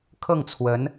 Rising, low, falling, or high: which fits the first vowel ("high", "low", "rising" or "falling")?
falling